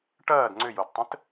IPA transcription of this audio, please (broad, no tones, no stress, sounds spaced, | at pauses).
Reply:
ʈ ɐː d ŋ͡ǀ ʏ j o d tˤ ə̃ t